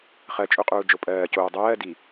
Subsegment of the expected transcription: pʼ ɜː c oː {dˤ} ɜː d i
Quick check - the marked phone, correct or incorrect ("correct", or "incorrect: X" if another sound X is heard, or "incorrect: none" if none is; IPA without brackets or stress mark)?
correct